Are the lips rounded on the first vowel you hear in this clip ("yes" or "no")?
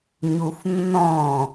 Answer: yes